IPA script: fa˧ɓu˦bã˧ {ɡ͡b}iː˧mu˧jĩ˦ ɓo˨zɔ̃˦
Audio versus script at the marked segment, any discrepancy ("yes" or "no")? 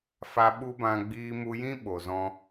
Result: no